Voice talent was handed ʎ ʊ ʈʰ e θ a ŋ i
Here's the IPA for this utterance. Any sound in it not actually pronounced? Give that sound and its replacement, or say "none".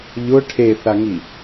none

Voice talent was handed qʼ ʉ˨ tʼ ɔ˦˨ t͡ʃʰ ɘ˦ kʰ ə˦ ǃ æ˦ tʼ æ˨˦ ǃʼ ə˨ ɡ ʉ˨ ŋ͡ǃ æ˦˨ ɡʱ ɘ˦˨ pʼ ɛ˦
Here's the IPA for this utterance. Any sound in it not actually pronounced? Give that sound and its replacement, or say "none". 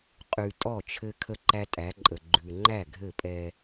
ɡ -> ɡ͡ǃ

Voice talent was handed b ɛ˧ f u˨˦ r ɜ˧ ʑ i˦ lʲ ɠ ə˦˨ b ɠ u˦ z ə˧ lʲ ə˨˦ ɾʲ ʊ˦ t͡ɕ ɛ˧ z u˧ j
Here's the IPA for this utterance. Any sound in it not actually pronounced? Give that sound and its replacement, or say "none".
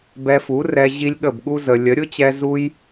ɜ˧ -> ɛ˧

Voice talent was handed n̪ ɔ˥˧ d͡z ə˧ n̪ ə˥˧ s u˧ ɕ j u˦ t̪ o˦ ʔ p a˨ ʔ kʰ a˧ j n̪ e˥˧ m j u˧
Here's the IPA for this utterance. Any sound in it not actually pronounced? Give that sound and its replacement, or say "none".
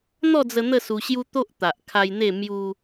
p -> t̪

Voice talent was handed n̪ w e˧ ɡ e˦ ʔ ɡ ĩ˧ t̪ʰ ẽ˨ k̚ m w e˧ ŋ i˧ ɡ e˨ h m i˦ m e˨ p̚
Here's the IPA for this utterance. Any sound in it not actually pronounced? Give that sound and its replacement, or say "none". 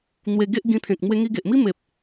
h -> ʔ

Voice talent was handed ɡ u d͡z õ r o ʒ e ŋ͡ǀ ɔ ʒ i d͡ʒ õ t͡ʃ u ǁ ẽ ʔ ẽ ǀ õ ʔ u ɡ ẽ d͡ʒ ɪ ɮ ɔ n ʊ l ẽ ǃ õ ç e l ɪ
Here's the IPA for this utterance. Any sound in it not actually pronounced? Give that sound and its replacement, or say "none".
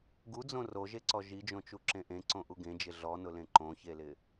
ŋ͡ǀ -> ǀ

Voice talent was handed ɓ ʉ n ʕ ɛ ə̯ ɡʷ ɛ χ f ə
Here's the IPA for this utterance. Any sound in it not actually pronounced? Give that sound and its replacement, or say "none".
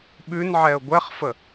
none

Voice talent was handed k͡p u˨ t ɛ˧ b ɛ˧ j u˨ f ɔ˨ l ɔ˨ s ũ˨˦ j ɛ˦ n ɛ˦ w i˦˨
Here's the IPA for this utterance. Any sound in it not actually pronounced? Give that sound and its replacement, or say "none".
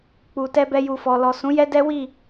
n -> d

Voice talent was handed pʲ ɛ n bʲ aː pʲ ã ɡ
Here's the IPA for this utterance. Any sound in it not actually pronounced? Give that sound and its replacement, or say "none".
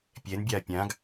none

